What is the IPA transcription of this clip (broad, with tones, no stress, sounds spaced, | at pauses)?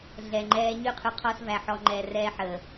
ɮ ɛ˨ ŋ͡ǃ ɛː˦ ɲ y˦ qʰ y˨ qʰ ɔ˦ s v æ˨ ħ ɔ˨ ŋ͡ǃ ɛ˨ r ɛː˦ ħ əː˨